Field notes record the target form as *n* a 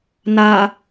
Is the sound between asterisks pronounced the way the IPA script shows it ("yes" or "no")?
yes